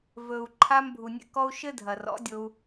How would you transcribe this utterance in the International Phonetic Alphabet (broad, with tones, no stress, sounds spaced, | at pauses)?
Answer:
v ɵ˨ u̯ ǃʰ a˧ m bʱ u˨ nʲ ɛ̰˧ k ɔ˧ u̯ ʃ ɘ˦ dʱ ɐ˨ r ɔ̰˨˦ dʲ o˧ u̯